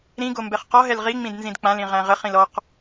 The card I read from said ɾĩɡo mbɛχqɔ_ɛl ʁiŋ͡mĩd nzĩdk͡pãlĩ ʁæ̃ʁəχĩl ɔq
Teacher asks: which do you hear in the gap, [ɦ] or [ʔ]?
ɦ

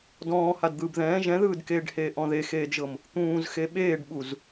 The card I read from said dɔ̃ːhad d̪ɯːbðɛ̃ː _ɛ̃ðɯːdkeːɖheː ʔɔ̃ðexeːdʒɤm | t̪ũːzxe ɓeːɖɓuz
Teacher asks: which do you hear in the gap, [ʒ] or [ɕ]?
ʒ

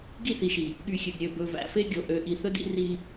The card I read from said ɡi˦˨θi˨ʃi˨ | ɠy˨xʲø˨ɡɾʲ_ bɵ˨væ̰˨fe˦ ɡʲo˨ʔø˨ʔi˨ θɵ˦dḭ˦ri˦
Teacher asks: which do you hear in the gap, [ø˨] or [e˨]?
ø˨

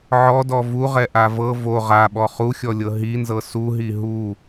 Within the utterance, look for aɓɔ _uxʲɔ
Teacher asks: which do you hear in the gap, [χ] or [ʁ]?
χ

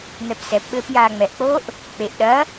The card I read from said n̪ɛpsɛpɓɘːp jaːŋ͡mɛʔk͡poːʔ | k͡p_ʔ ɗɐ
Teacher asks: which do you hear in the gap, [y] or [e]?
e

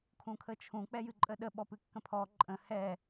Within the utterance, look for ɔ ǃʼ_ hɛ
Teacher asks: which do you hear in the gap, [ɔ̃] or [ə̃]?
ə̃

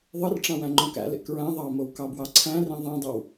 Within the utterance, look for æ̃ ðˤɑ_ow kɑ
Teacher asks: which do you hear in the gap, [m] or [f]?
m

